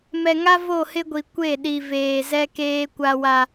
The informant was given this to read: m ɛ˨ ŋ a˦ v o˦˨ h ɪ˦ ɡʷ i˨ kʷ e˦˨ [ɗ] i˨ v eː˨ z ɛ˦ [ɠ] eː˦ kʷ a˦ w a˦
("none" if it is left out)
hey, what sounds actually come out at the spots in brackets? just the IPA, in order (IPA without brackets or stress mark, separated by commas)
ɗ, k